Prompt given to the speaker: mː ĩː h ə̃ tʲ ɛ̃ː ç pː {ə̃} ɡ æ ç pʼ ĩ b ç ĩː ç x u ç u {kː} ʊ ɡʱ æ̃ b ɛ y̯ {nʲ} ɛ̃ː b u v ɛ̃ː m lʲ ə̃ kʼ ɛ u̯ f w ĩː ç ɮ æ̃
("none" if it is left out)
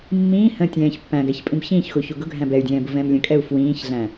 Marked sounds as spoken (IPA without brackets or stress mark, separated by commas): æ̃, ɡ, dʲ